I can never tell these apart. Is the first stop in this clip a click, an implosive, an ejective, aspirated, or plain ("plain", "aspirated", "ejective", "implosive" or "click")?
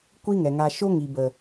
plain